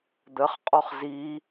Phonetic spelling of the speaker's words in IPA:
d̪ ə χ qʼ ɔ χ z i

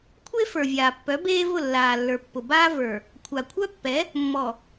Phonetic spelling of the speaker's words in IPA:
kʷʰ e˦ f ə˞˨ vʲ aː˨ pː œ˨˦ b eː˦ v ʊ˦˨ lː aː˨ lː ə˞˨ pː ʊ˨ b aː˦ v ə˞˨ | kʷʰ a˨ kʷʰ œ˦ pː ɛ˨˦ | mː ɔ˨

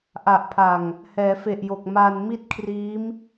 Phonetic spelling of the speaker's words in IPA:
ʔ a˨˩ ʔ pʰ a˨˩ ŋ | h ɛː˩˦ f e˨˩ ʔ j o˨˩ k̚ m a˧ n m i˦˥ t̚ kʰ r iː˦˥ m

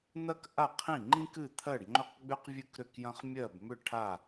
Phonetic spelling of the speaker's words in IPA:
n̪ ɐ˥ k ʔ a˥˨ qʰ ĩ˥˨ ŋ͡ǃ ĩ˥ k ɨ˥˨ t̪ʰ ɜ˥˨ ɖ ŋ͡ǃ ʏ˥˨ q ɡ͡b ʏ˥ q vʲ ɨ˥ k ɾ ʏ˥˨ k j ɐ̃˥ χ mʲ ɜ˥˨ b m ʏ˥˨ ʈʰ a˥˨

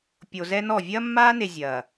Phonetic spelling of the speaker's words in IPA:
pʲ o˨ z ɛ˦ n ɔ˦˨ vʲ ɐː˦ mː aː˦ n e˨ zʲ ɐː˨

